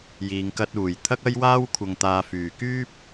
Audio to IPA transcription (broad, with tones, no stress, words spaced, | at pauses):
jiː˨ŋkɐ˧t̚ uː˨˩jt̪ʰɐ˥k̚ ɐ˥jwaː˥w kʷʰɐ˧ŋt̪aː˧fyː˨ kyː˥p̚